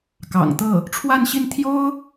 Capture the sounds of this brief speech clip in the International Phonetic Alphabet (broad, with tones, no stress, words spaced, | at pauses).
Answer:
kɑ̰˨˩ŋt̪ɤ˥˩ | ʈ͡ʂʰwa˥˧nɕi˥˩nt̪ʰjo˥ʊ̯